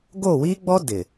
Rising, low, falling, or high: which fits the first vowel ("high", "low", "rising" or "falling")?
falling